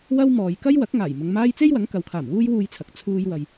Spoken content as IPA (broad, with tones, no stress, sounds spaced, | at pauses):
w ɐ˥ w m ɔː˨ j k ɐ˥ j w ɐ˨˥ k̚ ŋ aː˨˩ j m ʊ˨˧ ŋ m aː˥ j t͡s e˥ j w ɐ˨˥ ŋ k ɐ˨ w kʰ aː˨˩ m w uː˥ j w uː˧ j t͡sʰ ɐ˨ k̚ t͡sʰ uː˥ j w ɐ˧ j